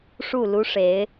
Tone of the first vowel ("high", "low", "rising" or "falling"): falling